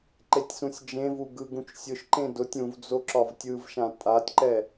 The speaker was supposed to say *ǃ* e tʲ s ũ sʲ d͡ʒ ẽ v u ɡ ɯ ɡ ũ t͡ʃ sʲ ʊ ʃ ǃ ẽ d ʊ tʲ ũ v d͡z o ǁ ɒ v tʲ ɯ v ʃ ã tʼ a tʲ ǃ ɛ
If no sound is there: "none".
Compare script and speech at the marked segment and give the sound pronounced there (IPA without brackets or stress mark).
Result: ǃ